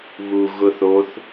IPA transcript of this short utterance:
β u ɣ ʊ θ o θ

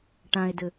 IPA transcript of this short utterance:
ʈ ã e̯ d ɘ

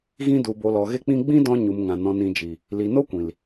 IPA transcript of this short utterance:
ɣ ĩ˧ d u˨ b o˨ l ɔ˨ ɣ e˧ k͡p ĩ˧ ɡ͡b ĩ˦ d ɔ̃˦ ɲ u˨ m ŋ ã˨ n ɔ̃˨ n ĩ˨ d͡ʒ i˨ | l i˨ n o˦ kʷ ĩ˨ l

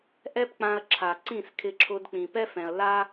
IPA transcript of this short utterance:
ʔ ɛ˦ p k͡p ã˧ ɐ̯ ǁʰ a˨ ǀ ĩ˦˨ s kʰ ɪ˧ ǁʰ ʊ˧ d k͡p ĩ˨ p ɛ˦ f ɛ̃˨ ɐ̯ l a˦

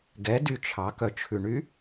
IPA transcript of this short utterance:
ɡ ɛ d y t͡ʃʰ ɑ k œ t͡ʃʰ ʉ ɳ y

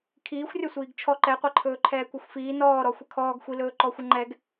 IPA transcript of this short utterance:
kʰ iː xʷ rʲ ɔ sʷ iː ɡ t͡ʃʰ ɔ ǃ ɛ qʷ ɛ ǃʰ ɵː ǃʰ ɛː kʷ ɛ xʷ f iː n ɔː ɾ ɔ xʷ ə kʰ ɔː ɡ xʷ i l ɵː ǃ ɔ xʷ ə ŋ͡ǃ ɛ ɡ

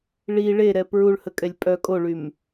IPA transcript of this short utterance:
ɭ i ɭ e ɾ ɛ p ɹ u ɭ h ə kʼ ɛ lʲ pʼ œ kʼ o ɭ y m

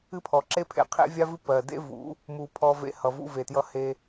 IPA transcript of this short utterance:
ɨ˦ pʰ ɔ˨ ǁ e˦ pʰ ḛ˨ qʰ ḛ˦ vʲ a˦ v ɨ˦ p ɜ˨ d ḛ˦ v ṵ˨˦ | m u˨ pʰ ɔ˧ v ḛ˧ h ʌ˨ v ṵ˧ v e˨ t j ʌ˧ h e˧

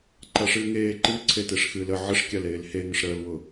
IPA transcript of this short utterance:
ǃ a ʂ ɨː ŋ eː ǃ ɨ ǀʰ e t e ʂ x ɨː l ə ʕ ə ʂ kʲ a l eː l h e ŋ ə ʂ ɾ əː l w ʊ

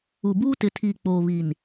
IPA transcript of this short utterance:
u˨ b uː˦ t ɪ˨ tʰ iː˨ k͡p oː˨ β i˨ n

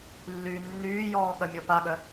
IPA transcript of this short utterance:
lː yː nː yː j ɔː ɠ ɐ mʲ ɔ p a ɠ œ

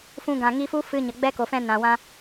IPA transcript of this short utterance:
f ũ˧ ɡ ã˨ ŋ i˧ f u˦ f ɨ˧ ɲ ə˨ ɡ͡b ɛ˦ k o˨ f ɛ̃˧ n ã˨ w ã˧

